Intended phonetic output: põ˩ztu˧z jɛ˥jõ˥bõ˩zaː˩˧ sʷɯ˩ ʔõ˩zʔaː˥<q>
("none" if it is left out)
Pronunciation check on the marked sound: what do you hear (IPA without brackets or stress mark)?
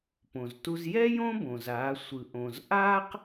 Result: q